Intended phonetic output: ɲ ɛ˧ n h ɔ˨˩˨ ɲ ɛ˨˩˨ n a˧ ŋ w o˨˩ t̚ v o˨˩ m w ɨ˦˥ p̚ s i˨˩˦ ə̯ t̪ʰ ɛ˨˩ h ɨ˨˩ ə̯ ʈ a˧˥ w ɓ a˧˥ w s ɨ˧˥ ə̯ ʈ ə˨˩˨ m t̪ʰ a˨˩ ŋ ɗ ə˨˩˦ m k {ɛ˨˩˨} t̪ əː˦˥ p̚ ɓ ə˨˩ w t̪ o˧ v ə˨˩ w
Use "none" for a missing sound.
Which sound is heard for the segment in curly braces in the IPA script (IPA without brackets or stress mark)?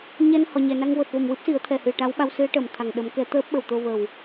ɛ˨˩˦